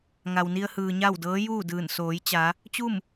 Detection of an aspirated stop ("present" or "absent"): absent